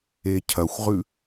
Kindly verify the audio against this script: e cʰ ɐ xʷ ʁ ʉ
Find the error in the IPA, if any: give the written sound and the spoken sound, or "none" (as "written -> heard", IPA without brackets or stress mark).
none